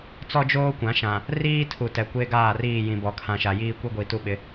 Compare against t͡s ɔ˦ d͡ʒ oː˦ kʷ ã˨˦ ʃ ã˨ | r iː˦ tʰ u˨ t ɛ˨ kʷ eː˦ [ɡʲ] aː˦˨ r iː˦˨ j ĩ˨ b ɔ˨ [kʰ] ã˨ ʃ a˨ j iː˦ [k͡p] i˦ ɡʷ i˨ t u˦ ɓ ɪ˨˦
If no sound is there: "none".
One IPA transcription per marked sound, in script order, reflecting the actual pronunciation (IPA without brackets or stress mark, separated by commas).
ɡ, kʰ, kʷ